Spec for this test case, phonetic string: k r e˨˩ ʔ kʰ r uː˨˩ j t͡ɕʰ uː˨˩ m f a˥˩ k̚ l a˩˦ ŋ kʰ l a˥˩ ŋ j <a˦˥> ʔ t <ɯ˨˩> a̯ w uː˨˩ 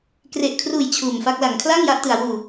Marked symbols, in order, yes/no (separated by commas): yes, no